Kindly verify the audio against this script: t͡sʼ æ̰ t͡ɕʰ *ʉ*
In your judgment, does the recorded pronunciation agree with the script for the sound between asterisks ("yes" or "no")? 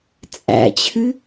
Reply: yes